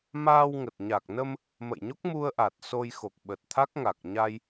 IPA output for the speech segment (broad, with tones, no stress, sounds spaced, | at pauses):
m aː˧ w ŋ ə˨˩ t̚ ɲ a˨˩ k̚ n ə˧ m | m ə̰˧˨ j ɲ o˦˥ k̚ m u˧ ə̯ ʔ a˨˩ t̚ s o˧ j x o˨˩ k̚ ɓ ə˨˩ t̚ t̪ʰ a˦˥ k̚ ŋ a˨˩ k̚ ɲ a˧ j